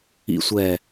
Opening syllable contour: falling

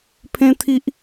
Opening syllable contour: high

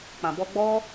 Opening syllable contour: low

